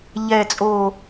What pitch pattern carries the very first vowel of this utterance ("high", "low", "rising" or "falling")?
low